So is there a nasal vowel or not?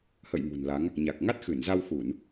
no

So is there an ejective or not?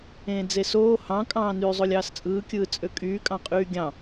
yes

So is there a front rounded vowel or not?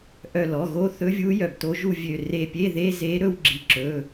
yes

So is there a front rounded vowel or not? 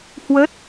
no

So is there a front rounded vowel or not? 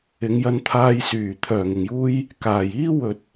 yes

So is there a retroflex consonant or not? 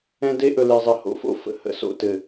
no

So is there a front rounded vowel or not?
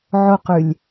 yes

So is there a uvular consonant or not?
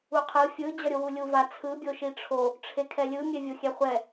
yes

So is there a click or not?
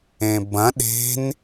no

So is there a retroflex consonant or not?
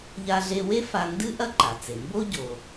no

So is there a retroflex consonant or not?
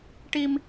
yes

